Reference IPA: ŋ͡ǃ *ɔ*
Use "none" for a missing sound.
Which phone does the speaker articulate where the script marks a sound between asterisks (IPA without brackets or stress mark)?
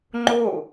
o